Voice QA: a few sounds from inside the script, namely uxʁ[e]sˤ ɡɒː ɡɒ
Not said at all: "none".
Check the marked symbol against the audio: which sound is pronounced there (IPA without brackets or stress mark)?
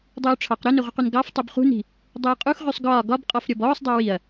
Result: y